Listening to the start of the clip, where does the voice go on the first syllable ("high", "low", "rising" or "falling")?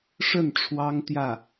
falling